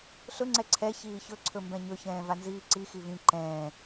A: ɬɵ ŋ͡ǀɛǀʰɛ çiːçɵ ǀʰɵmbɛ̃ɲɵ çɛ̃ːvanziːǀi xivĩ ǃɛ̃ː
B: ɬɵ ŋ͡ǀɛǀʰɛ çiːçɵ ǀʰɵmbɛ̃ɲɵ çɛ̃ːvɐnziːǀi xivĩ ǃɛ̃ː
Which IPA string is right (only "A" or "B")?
A